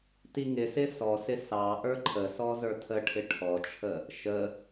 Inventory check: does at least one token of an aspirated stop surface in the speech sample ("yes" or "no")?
yes